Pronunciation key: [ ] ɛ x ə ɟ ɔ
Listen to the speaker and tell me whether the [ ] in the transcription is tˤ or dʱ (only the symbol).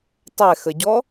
tˤ